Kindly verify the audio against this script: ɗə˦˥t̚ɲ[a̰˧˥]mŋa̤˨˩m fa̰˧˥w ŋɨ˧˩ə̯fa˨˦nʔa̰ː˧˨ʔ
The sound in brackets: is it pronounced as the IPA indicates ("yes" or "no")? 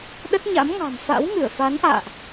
yes